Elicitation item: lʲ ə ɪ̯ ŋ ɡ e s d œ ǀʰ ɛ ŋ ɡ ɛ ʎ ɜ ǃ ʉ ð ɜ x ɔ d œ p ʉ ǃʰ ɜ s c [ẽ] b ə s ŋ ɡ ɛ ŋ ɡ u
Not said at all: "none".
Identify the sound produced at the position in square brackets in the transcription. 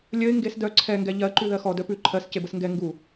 e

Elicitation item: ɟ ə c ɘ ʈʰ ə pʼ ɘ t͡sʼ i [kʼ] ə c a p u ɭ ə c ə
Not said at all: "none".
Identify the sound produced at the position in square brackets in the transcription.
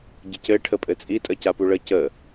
tʼ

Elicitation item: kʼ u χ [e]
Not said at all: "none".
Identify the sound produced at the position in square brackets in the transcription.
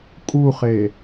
e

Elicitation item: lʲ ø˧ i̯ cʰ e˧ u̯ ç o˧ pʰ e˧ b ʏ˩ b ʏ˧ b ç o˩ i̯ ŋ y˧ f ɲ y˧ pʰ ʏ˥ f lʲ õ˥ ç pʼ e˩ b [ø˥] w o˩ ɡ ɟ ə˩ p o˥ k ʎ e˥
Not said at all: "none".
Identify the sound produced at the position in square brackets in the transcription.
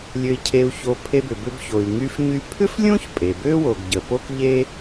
ø˥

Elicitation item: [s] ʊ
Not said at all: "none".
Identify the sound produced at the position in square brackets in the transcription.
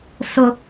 s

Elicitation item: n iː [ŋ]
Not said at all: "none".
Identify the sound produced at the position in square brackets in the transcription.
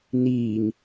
ŋ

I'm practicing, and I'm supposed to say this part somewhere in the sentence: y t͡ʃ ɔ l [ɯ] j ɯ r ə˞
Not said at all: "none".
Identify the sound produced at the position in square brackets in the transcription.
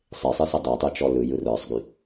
ɯ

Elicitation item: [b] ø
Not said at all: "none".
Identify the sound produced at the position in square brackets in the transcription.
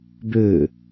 b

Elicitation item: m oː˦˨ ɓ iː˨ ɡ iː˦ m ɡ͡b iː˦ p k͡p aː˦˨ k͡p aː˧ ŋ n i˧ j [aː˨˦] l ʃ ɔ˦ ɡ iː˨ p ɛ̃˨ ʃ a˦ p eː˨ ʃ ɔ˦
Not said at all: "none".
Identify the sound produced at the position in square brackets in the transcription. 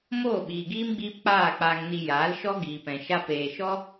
aː˨˦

